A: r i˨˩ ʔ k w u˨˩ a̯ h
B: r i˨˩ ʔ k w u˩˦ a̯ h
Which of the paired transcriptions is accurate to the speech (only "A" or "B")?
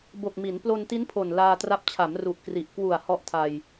A